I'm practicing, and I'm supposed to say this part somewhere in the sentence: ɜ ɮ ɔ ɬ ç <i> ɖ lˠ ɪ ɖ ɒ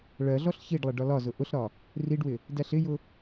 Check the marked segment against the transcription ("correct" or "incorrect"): correct